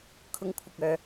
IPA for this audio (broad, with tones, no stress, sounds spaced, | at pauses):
kʰ ʊ˧ ŋ kʷʰ ɪ˨ k̚ œː˨